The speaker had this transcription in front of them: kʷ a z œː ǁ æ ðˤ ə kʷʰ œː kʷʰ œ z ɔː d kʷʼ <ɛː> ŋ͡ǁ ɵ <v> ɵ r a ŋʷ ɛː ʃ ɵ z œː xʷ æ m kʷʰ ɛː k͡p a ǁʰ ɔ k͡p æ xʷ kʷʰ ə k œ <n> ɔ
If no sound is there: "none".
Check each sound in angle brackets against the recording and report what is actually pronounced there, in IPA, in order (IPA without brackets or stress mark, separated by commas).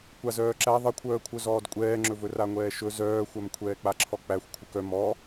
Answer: ɛː, v, m